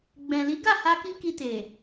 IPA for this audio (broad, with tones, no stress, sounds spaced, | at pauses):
ɡ͡b ɛ̃˨ l i˨˦ ɡ a˦˨ h a˧ k i˦ k i˧ t e˨